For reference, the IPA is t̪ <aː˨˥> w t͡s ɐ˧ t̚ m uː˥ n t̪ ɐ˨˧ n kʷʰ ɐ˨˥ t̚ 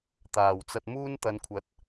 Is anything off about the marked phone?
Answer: yes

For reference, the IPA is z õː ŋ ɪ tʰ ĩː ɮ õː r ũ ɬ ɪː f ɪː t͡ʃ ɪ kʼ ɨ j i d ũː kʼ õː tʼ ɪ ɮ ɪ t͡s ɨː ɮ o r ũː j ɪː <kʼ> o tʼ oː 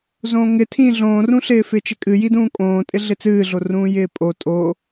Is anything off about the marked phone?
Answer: yes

